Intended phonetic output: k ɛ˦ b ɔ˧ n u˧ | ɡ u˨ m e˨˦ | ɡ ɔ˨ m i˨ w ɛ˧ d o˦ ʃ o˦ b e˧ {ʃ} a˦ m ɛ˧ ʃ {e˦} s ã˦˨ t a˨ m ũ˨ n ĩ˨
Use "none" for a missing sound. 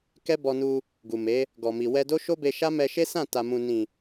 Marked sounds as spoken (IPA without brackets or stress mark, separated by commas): ʃ, e˦